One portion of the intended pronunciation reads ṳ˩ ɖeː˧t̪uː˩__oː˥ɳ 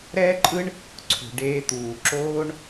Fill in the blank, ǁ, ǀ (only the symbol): ǁ